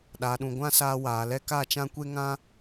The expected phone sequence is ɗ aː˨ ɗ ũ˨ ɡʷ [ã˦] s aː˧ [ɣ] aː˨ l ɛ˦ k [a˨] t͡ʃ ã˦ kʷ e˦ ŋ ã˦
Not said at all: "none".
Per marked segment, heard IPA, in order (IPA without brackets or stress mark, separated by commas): ã˦, w, a˦˨